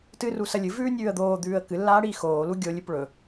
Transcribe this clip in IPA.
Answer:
tɨrusɐ lʲɨvʉːnʲʉːə̯ d̪oːd̪ʉːə̯ kɨlːaːɽiː xoːlu ɡʲolʲɨp ɭɵ

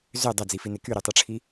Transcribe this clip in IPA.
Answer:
zø dˤod͡zifine kyɾytˤɯʈ͡ʂʰi

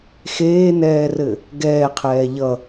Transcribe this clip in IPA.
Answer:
xeːnɛːrɘ | ɡɛːqʰɛː ʎʌ

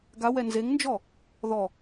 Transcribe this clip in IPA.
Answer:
ɡawɛ nzeŋnd͡ʒɔ | ðɔ

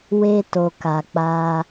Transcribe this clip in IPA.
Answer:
we˧to˨ka˨ k͡pa˧

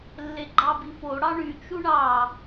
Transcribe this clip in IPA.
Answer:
lːeɡ͡ǃɑbifo ɽɑɳy t͡ʃuɳɑ

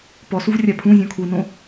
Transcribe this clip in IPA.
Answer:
pɔsuv rʲapʰũzʲɔ̃ kʰunõ

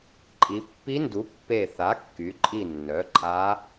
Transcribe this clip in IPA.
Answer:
ǃʼi˩˧pːi˧˥ndu˩˥ pːe˧˩θa˩˥kːy˩˧ǃʼi˧˩ nːœ˩˥ǃʼa˧˥

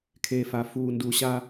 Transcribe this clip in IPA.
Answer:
kʰeː˨fa˨ fuː˨ndu˨ɕa˦

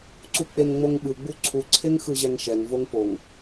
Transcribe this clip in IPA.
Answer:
ǀuk͡peŋŋ͡moŋɓɯ ɡ͡buǀʰu ǀʰeŋxɯʑɛŋʃɛŋ voŋpoŋ

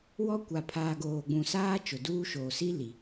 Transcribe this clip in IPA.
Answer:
wɔ˦kʷa˨ pʰaː˨ ɡoː˨ ɡ͡bũ˨saː˦ t͡ʃʊ˨duː˦ʃoː˨ si˦li˨

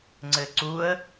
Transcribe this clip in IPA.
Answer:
ŋ͡ǀɘǀuə̯

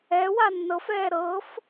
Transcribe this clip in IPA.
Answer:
ɛ wanːɤfɛː ɾɤf

